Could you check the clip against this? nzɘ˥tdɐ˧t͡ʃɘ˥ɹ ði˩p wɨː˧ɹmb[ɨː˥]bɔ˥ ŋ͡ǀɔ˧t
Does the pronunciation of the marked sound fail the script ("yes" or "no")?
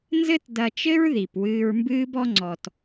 no